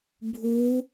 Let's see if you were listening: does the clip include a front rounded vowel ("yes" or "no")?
no